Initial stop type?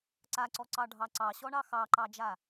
click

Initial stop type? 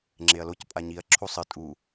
click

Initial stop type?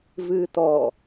plain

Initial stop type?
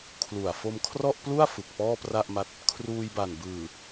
aspirated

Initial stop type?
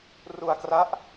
plain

